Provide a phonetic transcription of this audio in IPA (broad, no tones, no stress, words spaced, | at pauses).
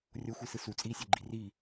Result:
rʲoxʷisɯ sut͡sʼiːsʲɛɡ͡ǃi ri